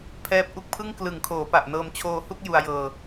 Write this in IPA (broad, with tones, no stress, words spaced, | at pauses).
pʰɛː˦˥p̚ʔu˦˥k̚pʰɯ˥˩ŋ klɯ˩˦ŋkʰoː˩˦pa˨˩ʔ nɤː˧mt͡ɕʰoː˧hu˥˩k̚ ju˧a̯jɤː˧